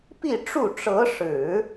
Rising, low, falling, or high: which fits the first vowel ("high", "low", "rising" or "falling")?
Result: falling